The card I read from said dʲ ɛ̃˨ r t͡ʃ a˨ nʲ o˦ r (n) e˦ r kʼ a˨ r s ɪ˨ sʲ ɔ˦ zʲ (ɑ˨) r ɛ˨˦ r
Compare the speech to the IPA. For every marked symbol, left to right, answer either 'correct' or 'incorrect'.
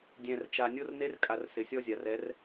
correct, incorrect: a˨

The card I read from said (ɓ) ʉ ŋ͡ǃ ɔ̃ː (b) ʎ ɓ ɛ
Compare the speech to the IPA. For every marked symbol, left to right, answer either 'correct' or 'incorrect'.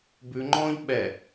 incorrect: b, incorrect: none

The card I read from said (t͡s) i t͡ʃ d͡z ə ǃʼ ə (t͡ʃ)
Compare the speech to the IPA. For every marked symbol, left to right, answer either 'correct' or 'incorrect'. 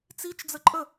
correct, incorrect: none

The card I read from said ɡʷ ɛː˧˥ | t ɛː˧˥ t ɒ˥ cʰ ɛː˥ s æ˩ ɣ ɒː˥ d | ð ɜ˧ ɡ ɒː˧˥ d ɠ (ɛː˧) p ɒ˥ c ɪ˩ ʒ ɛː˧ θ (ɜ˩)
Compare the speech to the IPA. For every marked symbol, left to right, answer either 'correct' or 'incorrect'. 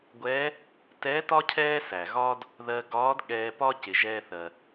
correct, correct

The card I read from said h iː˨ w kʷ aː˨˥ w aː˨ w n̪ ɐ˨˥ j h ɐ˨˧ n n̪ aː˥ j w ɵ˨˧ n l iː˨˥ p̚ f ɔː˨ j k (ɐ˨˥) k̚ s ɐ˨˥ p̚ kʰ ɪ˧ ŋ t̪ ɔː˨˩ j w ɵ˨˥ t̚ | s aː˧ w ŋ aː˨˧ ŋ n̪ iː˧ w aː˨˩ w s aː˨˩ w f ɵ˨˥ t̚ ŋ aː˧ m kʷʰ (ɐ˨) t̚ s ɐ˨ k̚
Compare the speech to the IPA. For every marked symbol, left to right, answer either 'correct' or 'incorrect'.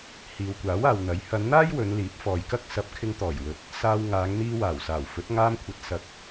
incorrect: ɐ˥, correct

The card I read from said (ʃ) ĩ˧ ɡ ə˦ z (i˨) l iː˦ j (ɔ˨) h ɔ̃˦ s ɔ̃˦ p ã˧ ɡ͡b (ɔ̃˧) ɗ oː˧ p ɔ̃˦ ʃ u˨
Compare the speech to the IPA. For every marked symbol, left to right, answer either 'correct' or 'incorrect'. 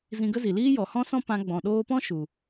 incorrect: z, correct, correct, incorrect: ɔ̃˨

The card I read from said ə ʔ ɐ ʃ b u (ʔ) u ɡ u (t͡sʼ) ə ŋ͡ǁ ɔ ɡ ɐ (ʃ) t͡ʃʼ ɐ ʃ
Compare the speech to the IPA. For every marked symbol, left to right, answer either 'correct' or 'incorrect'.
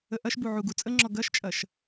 incorrect: ʕ, correct, correct

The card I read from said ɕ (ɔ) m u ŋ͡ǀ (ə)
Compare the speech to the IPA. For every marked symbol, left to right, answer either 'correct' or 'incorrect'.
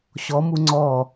correct, incorrect: ɔ

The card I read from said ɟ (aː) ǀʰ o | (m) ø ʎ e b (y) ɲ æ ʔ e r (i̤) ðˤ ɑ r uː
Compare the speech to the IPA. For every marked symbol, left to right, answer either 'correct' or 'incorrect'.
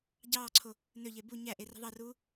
incorrect: ɑː, incorrect: n, incorrect: u, correct

